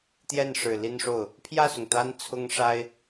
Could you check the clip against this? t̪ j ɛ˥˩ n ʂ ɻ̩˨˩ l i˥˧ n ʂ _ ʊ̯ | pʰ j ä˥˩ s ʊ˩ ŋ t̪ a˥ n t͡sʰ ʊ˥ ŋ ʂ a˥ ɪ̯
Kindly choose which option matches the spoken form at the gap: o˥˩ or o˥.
o˥˩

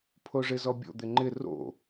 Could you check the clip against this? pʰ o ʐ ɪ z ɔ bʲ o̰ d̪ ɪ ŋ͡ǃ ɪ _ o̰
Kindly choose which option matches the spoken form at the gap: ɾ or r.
r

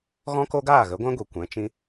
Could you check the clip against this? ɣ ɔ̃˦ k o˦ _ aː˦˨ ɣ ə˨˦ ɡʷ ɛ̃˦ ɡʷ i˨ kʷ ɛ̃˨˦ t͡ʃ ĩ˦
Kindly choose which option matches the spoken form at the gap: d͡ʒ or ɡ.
ɡ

